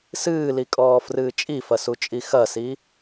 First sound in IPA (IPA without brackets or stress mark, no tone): s